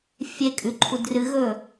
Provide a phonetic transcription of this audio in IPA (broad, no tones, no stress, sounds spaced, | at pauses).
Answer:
fʲ e kʼ ʉ ǃʰ u d r ɨ ɣ ɵ